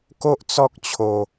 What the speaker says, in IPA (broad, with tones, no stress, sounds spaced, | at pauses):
k o˦ ʔ t͡s ɔ˦ k̚ t͡ɕʰ o˧